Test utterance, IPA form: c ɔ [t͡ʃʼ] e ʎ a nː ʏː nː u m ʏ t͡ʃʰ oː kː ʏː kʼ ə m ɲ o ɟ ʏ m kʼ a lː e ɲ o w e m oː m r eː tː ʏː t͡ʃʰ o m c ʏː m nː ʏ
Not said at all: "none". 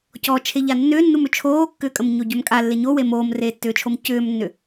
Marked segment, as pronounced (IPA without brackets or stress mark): t͡ʃʰ